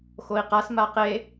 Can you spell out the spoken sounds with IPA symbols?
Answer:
xoi̯qas maqe

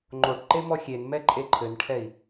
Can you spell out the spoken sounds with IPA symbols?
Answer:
ŋ͡ǃoʈǃe mɔxʲenmɛ ǃʼeǃʰɘnʈʰɛi̯

